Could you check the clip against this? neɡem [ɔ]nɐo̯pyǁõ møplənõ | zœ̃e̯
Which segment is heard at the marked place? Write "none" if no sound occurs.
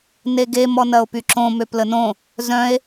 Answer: ɔ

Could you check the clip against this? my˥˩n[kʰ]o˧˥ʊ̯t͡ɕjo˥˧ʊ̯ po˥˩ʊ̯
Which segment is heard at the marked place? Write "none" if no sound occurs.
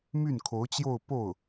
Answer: kʰ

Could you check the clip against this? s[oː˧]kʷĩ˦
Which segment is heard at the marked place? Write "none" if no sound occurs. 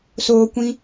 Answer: oː˧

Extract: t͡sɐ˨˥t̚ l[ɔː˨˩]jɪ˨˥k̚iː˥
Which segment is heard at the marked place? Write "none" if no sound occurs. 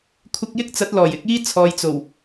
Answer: ɔː˨˩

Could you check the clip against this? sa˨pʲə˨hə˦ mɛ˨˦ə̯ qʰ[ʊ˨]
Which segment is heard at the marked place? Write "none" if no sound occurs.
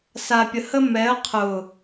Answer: ʊ˨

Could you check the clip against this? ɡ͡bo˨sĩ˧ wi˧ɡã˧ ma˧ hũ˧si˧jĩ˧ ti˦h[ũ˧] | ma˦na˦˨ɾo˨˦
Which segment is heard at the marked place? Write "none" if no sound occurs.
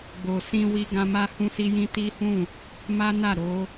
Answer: ũ˦˨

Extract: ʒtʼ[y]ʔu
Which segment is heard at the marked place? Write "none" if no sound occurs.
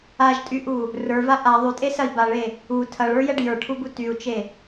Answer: y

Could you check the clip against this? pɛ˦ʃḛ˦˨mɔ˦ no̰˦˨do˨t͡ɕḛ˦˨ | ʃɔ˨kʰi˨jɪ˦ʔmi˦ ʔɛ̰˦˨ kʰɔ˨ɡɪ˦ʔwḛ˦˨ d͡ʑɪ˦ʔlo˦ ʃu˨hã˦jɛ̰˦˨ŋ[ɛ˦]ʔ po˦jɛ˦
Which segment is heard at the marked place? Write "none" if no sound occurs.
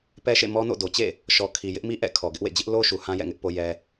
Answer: ɪ˦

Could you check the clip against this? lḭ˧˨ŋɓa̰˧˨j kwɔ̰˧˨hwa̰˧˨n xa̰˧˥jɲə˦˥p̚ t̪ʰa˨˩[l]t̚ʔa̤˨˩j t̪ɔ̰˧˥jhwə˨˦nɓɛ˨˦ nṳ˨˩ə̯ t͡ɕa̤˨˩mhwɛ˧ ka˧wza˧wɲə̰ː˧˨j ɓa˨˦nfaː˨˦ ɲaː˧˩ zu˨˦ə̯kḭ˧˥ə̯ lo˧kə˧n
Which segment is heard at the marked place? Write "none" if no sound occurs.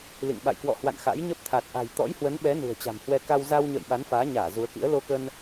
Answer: none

